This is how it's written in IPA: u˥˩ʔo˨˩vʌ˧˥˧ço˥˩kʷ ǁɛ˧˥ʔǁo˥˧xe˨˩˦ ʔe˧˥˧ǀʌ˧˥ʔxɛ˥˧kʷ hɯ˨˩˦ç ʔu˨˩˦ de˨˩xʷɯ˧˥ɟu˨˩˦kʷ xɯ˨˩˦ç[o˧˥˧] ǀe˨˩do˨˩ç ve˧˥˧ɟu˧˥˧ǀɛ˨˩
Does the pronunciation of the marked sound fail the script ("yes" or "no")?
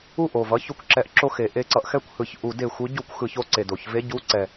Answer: yes